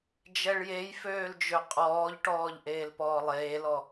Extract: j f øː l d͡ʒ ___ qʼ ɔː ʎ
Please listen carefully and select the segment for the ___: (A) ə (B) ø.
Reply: B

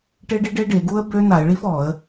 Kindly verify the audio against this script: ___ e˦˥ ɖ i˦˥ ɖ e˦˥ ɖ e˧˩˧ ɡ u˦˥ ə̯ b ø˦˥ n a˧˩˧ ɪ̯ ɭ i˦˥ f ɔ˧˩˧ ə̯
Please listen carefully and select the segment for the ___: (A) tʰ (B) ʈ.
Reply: B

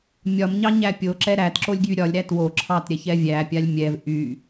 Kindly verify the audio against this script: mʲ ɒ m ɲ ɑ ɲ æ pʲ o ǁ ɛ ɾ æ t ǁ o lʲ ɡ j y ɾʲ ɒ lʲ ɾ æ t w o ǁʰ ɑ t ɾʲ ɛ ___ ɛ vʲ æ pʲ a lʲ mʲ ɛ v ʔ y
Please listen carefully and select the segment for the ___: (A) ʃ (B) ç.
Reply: B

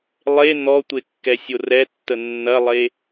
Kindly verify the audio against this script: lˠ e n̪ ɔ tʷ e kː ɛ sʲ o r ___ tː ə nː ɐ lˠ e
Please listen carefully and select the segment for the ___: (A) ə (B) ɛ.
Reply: B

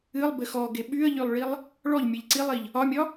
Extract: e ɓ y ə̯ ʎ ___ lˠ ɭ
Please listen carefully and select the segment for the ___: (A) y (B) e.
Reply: A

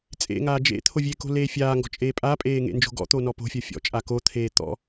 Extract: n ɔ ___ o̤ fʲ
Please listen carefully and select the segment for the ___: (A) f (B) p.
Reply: B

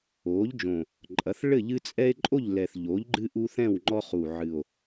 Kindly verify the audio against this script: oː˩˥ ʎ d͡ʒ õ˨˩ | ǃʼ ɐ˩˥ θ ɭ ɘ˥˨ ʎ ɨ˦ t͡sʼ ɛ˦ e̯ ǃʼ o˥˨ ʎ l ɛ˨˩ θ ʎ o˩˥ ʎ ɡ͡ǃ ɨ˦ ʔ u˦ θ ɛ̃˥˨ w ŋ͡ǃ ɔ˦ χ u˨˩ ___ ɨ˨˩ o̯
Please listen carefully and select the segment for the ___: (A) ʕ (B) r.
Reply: A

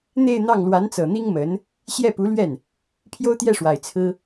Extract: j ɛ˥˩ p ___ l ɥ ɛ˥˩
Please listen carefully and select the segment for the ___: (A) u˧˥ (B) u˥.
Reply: A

